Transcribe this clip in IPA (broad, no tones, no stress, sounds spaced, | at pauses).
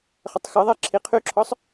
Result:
χ ə tˤ x ə ðˤ ɛ ǁʰ i qʰ y ǁʰ ɔ sˤ